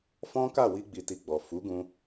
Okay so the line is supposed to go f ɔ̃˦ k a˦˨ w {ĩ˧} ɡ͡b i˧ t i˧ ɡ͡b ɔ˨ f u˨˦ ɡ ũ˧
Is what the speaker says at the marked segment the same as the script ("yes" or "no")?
no